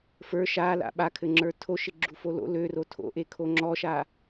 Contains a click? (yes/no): yes